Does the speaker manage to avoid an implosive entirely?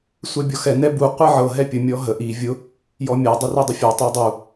yes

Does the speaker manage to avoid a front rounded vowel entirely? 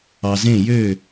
no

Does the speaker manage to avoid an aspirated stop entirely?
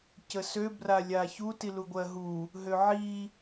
yes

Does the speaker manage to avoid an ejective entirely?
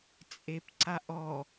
no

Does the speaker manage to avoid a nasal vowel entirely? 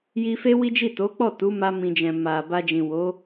no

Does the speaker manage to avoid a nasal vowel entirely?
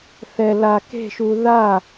yes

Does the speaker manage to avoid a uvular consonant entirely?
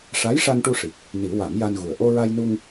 yes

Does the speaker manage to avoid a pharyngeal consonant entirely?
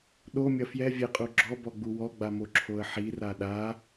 no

